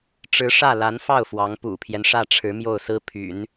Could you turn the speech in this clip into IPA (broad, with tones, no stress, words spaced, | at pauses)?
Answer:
ʈ͡ʂɻ̩˧˥ʂä˥˩ la˧˥nfɑ˥˩ʊ̯ fwɑ˧˥ŋ pṵ˨˩pʰjɛ˦nʂä˥˩ʈ͡ʂʰɻ̩˧˥ mjo˥˩ʊ̯sɹ̩˥pʰy̰˨˩˦n